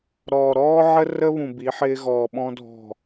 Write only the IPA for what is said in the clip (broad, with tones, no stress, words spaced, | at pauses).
ɾɔ˨ɾɔː˦ʕə˦ rə˦βũ˨ bi˨˦ħɪː˦ɣɔː˨ɓɔ̃˦ dʱɔ̤˨